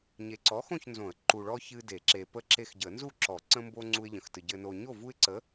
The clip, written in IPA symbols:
ɲ e˨ ǀ ɔ˨˥ x õ˥˨ ç n z õ˨˩˦ ə̯ ǃ u˨ ɭ ɔ˦ ç ɨ˦ d e˨˩˦ ǁ e˨ p ə˥˨ ǁ e˦ x ɟ ə˨˩˦ n z u˥˨ ǁ ɔ˨˩˦ ǀ ə̃˦ m b o˦ ŋ͡ǀ u˦ ɪ̯ ʎ ə̃˨ x t ɨ˨ ɟ ɘ˨ n o˨ ɲ o˥˨ v u˦ ɪ̯ ǀ ə˨˥

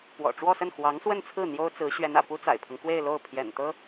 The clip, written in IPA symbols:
p w ɔ̰˨˩ ʈ͡ʂ w ɔ˥˧ s ə˥˩ n x w ɑ˧˥ ŋ s w ə˥˧ n t͡sʰ ɹ̩˥˩ n̪ j o˥ ʊ̯ t͡s ɹ̩˧˥ ɕ ɥ ɛ˧˥ n ä̰˨˩ p u˥ t͡s a̰˨˩ ɪ̯ pʰ ɤ˦ ŋ k w e˥˧ ɪ̯ l o˥˩ ʊ̯ pʰ j ɛ̰˨˩ n t̪ ɤ˥

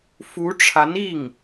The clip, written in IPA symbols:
f u˧˥ ʈ͡ʂʰ a˧˥ n i˥˩ ŋ

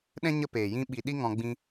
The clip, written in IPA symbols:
ɗ ɛ̃˦ ɲ ə˦ p eː˨ j ĩ˧ ɓ i˨ ɗ i˧ ŋ ɔ̃˧ ɡ͡b ĩ˦

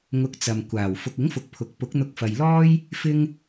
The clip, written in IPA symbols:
ŋ ʊ˧ k̚ t͡s ɐ˨ m kʷ aː˨˩ w f ʊ˨ k̚ ɪ˨˥ ŋ f ʊ˨ k̚ pʰ ʊ˨ k̚ p ʊ˨˥ k̚ n̪ ʊ˧ k̚ f ɐ˨ j l ɔː˥ j | f ɪ˥ ŋ

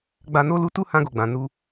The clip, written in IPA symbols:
ɡ͡b a˧ n o˦ l u˦ t u˦ h ã˧ ɡ o˨ ɡ͡b ã˨ n u˧

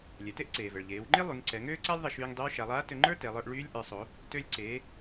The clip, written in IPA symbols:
lʲ ɛ˩˧ t e˥ ʔ ǀ eː˩ v ɛ˩ ɭ ʎ eː˩˧ w ŋ͡ǃ e˥ lˠ y˩˧ ŋ ǀ ɛ˩˧ ŋ øː˥ ǀ a˥ lʲ ðˤ ʌ˧ ʃ yː˧ ŋ dˤ ø˧˥ w ʃ a˩˧ lˠ aː˧˥ t ø˧ ŋ͡ǃ ə˞˥ t ɛ˩˧ lˠ ə˞˧ ʔ ɭ yː˧˥ lʲ ʔ ə˞˩˧ sˤ o˩˧ | t ø˧ lʲ ǀ eː˩˧

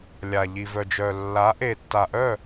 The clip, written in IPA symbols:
lʲ a˨ ʎ i˨ v œ˨ d͡ʒ œ˨ lː a˨˦ ʔ e˨ tː a˨ ʔ œ˦˨

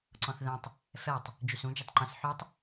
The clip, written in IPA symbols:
ǀ ɔ̃ θ ð ɛ̃ tˤ | f ɛ tˤ | d͡ʒ y s ũ d͡ʒ œ tˤ ŋ͡ǃ ɛ̃ s ħ y tˤ

